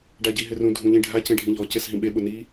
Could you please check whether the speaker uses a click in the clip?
no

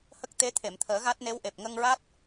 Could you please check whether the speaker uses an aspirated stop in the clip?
yes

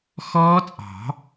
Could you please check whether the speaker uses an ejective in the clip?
yes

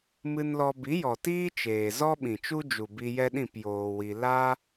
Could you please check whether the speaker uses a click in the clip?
no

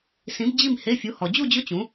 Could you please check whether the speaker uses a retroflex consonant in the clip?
no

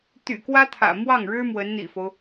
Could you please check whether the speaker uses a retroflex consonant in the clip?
yes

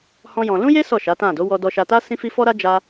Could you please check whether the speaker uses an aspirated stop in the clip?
no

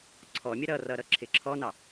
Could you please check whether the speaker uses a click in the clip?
yes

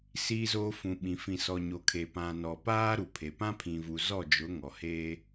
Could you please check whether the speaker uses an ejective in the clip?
no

